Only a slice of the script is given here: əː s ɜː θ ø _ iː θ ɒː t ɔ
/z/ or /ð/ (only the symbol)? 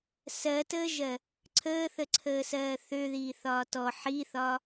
ð